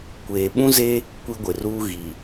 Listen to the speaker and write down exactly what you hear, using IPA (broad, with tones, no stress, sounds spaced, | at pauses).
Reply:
kʷ eː˨ ɓ ũ˦ z e˦ | kʷ i˦ ɡʷ ɪ˨ r uː˦ ɣ i˨